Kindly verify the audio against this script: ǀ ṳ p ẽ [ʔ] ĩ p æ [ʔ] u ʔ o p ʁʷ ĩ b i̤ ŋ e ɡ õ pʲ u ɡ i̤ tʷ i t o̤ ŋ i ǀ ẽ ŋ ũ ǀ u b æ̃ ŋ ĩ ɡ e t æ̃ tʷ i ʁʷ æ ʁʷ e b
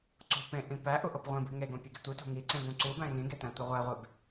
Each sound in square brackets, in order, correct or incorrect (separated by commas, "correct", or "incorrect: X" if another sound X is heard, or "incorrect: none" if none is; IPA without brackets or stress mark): correct, correct